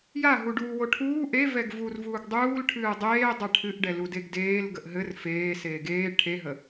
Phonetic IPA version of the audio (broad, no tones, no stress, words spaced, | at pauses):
jaɦuɖuːwo ʈʰuː ʔevɛɡ vur vuːɡdˤuːl ʈʰɨːdˤeːdˤɛ ʈʰɨʔɖɛ ludeɡdeːl ɡəʔɦɘr feː seːɡeː ʈʰeɦə